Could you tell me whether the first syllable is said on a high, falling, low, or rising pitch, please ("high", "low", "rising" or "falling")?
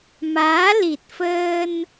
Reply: rising